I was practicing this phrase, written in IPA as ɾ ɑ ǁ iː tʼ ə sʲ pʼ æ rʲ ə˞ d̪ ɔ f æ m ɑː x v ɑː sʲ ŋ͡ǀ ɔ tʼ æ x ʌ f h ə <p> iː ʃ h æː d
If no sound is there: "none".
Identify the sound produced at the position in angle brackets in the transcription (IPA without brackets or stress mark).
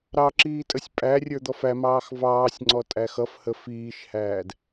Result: f